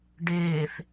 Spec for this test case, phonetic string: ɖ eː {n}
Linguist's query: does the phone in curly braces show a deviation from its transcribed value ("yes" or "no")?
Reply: yes